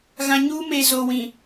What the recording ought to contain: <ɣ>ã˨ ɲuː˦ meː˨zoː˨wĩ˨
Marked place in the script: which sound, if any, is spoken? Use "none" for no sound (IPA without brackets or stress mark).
ɣ